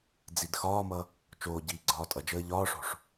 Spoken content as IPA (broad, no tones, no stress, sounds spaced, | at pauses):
d͡z i d x ɒː m ʌ | t͡ʃ oː ɟ iː ɡ͡ǀ ɒː tʼ ʌ d͡ʒ əː ʎ ɒː ʂ o̤ ʂ